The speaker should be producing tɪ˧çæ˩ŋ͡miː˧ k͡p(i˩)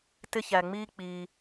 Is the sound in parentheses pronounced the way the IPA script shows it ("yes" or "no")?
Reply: yes